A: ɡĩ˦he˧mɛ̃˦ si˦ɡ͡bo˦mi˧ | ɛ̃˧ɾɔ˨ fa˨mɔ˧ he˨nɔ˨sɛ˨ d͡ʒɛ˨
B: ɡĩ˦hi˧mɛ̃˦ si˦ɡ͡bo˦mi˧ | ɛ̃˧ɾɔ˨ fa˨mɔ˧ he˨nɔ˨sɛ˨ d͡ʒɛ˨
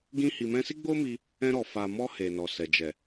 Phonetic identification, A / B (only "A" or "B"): B